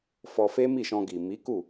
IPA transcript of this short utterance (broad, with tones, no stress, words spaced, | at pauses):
fɔ˧fe˦mi˦˨ ʃɔ̃˧ɡi˨ mi˨˦ ku˦˨